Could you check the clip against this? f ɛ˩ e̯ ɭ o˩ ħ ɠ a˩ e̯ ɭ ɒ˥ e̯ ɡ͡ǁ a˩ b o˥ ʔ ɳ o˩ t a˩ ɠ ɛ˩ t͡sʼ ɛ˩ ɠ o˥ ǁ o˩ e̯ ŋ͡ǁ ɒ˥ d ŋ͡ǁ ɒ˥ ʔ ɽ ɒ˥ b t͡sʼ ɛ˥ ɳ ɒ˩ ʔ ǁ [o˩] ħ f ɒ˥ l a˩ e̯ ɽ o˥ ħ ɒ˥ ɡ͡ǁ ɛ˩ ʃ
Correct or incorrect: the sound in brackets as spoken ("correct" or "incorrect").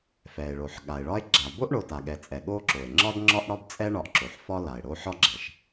correct